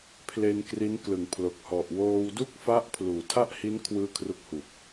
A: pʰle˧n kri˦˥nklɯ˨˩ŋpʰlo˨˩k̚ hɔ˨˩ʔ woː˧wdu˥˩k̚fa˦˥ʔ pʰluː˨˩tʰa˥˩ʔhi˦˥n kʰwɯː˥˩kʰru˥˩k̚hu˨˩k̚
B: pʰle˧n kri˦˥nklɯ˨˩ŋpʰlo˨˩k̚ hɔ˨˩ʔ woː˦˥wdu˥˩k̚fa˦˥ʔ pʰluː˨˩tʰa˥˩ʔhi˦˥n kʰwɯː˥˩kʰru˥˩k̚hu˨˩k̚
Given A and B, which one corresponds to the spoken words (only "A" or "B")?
A